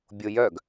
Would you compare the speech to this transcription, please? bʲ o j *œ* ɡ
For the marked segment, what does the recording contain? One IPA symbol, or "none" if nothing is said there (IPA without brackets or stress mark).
œ